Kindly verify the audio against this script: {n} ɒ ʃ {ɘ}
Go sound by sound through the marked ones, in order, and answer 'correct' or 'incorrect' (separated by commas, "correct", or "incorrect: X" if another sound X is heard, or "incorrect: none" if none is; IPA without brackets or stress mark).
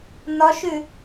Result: correct, incorrect: ʉ